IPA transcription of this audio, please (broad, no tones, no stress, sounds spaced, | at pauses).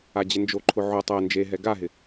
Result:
a d͡ʑ ɪ n d͡ʒ o ǃʰ ʊ ʕ ʊ tˤ ɛ n d͡ʒ e ɦ ɛ ɡ a ɦ ɪ